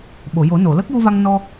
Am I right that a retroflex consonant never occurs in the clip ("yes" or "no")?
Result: yes